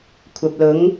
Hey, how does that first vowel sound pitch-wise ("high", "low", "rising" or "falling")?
low